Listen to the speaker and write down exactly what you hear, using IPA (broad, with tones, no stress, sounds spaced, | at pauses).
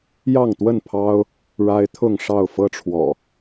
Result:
j ɑ˥˨ ŋ t̪ w ə˥˨ n pʰ ɑ˦ ʊ̯ | ɻ a˦ ɪ̯ t̪ʰ ʊ˥˨ ŋ ʂ ɑ˥˨ ʊ̯ f ɤ˦ ʈ͡ʂʰ w ɔ̰˨˩